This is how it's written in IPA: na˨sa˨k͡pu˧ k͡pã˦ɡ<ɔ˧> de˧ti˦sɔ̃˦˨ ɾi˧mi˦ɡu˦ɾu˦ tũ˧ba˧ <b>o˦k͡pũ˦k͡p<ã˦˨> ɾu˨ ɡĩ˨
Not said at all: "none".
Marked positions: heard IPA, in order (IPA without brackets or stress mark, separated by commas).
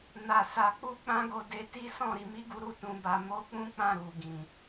o˧, m, ã˦˨